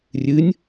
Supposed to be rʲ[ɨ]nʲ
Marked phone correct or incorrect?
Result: correct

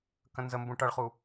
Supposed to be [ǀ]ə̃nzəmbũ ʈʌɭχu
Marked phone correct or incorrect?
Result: incorrect: k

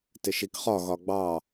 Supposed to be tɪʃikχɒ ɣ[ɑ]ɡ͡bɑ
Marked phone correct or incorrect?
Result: incorrect: ɒ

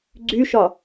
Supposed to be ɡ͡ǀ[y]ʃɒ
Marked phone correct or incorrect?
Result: correct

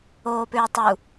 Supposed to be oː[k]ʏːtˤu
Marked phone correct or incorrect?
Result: incorrect: p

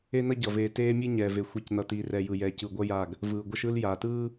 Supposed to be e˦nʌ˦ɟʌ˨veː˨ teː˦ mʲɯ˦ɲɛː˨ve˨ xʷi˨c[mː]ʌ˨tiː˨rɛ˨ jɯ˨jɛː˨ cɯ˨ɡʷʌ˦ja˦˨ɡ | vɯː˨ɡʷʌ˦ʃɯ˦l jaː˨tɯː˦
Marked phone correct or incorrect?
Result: incorrect: n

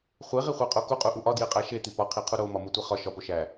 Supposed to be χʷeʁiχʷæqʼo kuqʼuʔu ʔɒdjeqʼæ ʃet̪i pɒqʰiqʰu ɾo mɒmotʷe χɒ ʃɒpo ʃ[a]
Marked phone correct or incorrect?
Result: incorrect: æ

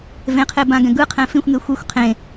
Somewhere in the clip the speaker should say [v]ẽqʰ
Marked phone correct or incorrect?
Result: correct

